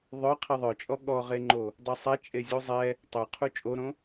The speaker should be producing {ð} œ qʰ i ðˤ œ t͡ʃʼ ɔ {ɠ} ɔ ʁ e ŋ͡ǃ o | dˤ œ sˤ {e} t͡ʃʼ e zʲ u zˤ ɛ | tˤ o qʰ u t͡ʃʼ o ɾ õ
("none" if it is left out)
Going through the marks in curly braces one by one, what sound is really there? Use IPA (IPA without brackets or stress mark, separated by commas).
ðˤ, ɠ, ɛ